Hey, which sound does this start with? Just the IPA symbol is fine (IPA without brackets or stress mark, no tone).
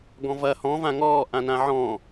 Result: ɡ